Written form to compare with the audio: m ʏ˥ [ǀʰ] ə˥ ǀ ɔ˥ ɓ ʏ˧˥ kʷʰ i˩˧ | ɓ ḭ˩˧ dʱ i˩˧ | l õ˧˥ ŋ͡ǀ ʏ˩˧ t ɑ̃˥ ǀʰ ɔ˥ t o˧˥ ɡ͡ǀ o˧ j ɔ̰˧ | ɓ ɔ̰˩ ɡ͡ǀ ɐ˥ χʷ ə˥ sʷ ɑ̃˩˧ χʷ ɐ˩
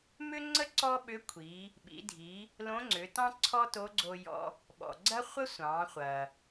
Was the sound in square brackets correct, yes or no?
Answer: no